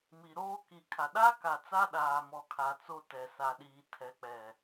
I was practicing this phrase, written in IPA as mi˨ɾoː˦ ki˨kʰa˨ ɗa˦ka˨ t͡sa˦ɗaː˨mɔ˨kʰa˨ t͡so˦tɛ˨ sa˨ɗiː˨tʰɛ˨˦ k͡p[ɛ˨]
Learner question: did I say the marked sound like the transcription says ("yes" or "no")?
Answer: yes